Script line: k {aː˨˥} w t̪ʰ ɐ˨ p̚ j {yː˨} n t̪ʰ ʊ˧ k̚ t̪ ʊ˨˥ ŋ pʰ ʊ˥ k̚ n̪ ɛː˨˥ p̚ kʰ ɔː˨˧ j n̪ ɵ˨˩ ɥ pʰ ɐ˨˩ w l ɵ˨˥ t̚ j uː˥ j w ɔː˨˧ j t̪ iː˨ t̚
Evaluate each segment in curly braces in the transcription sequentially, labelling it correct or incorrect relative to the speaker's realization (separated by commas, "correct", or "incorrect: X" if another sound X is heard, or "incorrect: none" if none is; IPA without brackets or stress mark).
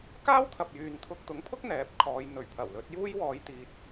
incorrect: aː˥, correct